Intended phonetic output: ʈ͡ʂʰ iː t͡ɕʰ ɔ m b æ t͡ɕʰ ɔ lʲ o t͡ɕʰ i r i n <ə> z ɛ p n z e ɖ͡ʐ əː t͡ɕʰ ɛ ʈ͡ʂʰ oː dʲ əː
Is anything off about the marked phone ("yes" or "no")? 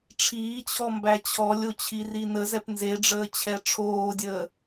no